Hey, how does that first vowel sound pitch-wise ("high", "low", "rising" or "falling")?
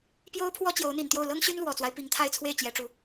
high